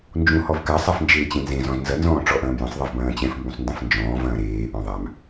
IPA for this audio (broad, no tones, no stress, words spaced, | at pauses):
nd͡ʒũhɔvka sˤafnd͡ʒeːt͡ɕẽnzẽ zɔ̃znzɐ nzɔ̃ːʈ͡ʂɔʔɐ̃ːmjɐ̃sˤ ðˤevbɐ̃ːt͡ɕɛ̃f mbũsˤndɐ̃fnd͡ʒɔ̃ː vɐ̃ːɾeː ʔɔ̃ðˤam